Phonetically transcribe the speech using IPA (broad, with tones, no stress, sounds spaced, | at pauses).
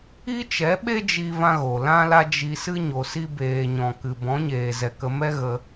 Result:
i˦ t͡ʃ ɛ˨˦ ɓ e˦ d͡ʒ i˦ v ã˦ ɣ o˨ l ã˦ l a˦ d͡ʒ i˧ s ɨ˦ ɲ o˨ s i˧ b eː˨ ɲ ɔ̃˨ k ɨ˨ b ɔ̃˨˦ ɲ eː˨ z ɛ˨ k ə˧ m ɛ˦ ɣ ə˧